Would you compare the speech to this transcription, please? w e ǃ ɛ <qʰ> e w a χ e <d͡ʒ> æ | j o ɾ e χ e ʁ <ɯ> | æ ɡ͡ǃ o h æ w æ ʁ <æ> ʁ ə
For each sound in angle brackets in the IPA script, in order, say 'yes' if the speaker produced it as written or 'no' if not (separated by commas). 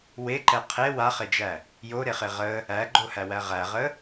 yes, yes, no, yes